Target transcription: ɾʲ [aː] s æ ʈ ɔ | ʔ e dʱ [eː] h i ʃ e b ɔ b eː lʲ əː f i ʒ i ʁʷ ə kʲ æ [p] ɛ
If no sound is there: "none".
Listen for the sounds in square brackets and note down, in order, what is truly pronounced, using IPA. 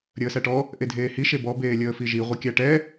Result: əː, eː, ʈ

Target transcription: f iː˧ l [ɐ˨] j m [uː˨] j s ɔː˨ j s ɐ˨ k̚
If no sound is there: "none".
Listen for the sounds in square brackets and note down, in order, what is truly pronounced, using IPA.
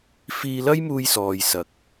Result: ɐ˥, uː˧

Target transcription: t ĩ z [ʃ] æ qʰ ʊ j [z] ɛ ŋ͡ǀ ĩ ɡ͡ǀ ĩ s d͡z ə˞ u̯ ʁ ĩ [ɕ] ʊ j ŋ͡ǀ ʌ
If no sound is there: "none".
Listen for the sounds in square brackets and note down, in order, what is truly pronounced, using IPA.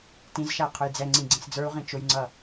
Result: ʃ, d͡z, t͡ʃ

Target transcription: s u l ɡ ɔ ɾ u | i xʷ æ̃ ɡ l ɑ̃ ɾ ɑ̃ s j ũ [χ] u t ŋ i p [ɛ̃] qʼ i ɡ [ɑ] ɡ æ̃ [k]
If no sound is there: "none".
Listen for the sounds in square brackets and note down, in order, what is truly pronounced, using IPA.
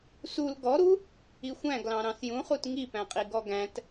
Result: χ, æ̃, ɔ, t

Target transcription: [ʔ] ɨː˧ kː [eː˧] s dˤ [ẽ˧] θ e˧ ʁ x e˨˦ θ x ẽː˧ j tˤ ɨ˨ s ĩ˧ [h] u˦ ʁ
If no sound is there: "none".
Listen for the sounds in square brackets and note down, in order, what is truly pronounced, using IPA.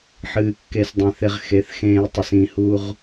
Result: ħ, e˧, ẽ˧, h

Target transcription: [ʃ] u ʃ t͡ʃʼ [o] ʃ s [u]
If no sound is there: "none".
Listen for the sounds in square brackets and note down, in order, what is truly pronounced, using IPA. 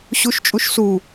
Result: ɕ, u, u

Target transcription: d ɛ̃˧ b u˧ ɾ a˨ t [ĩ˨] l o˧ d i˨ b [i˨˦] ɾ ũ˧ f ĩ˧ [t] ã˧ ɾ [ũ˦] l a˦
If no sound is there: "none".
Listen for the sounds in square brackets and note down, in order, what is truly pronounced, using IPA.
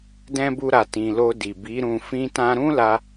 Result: ĩ˨, i˨˦, t, ũ˦

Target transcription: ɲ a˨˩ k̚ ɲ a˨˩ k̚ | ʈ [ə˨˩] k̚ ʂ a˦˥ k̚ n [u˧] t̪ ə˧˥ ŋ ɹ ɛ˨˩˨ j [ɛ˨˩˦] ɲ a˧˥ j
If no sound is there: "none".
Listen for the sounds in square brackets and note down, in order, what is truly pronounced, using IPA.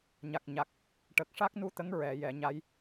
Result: ə˨˩, u˧, ɛ˨˩˨

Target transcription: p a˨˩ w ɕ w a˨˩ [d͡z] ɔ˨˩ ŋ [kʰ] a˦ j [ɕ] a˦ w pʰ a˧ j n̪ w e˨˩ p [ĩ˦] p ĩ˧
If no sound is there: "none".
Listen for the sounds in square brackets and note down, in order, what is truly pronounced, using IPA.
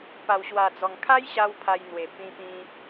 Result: d͡z, kʰ, ɕ, ĩ˧

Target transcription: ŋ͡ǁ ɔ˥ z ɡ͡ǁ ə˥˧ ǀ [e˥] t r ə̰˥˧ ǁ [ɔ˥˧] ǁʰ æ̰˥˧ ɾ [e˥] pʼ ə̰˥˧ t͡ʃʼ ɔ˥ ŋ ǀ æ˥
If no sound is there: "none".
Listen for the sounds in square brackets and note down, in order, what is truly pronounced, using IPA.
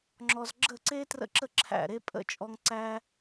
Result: e˥, ə˥˧, e˥

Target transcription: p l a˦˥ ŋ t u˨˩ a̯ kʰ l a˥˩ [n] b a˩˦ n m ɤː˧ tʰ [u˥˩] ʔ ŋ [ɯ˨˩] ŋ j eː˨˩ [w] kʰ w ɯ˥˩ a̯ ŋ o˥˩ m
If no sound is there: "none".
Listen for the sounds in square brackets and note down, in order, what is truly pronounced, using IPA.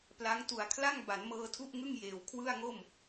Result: ŋ, u˥˩, ɯ˥˩, w

